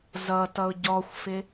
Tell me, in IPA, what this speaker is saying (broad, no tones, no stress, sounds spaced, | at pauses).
z ʌ t ʌ ʊ̯ ɟ ɔ xʷ f ɪ